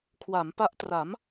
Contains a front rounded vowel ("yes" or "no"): no